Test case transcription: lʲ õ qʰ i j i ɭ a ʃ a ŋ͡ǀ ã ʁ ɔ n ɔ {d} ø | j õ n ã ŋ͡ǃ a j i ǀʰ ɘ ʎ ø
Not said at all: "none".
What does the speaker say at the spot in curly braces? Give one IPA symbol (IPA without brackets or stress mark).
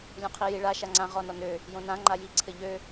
n